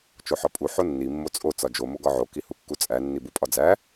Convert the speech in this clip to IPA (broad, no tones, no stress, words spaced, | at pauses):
t͡ʃoħɒpʼu ħonːi mːot͡sʼo t͡sɒd͡ʒo moɡɒʕo kihukːut͡sʼæ nːibupʼɒd͡zæ